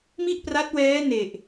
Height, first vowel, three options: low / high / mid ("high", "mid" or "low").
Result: high